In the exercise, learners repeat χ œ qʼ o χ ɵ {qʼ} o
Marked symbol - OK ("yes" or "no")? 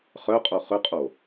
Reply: yes